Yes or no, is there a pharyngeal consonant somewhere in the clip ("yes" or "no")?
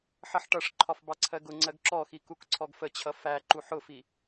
yes